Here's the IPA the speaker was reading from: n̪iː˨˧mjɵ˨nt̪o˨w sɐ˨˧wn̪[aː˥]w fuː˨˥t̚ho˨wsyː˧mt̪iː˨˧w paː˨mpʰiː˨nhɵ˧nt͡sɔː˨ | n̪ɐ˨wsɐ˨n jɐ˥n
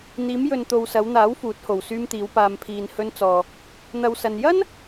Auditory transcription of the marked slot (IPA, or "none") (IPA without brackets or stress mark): aː˨˥